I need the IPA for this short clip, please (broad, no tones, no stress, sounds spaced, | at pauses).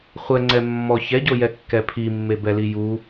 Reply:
χʷ ɛ ŋ͡ǀ ɛ mː ɔ ç ɛ ɟ o j ɛ kː ɛ pʰ i mː e b ɛ l i j u